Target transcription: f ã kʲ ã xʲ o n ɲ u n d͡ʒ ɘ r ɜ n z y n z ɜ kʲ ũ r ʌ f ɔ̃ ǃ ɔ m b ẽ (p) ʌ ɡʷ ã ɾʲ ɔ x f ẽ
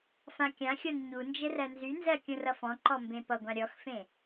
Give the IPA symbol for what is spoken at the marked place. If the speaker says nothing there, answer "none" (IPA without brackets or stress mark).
p